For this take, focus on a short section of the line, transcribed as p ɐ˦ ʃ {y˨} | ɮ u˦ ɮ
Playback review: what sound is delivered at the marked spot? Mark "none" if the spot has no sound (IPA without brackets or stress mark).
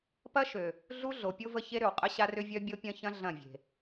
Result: ø˨